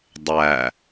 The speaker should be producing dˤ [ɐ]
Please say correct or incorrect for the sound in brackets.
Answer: incorrect